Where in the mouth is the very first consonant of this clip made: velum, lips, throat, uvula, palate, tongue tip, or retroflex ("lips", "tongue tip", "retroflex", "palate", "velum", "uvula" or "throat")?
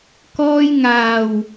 velum